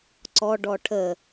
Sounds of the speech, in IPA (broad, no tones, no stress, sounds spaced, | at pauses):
ǀ ɔ ɖ ɔ ʈʰ ə